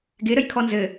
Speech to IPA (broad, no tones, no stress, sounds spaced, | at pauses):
ɡ ɪ ɾ ə j kʰ ɔ n z ɘ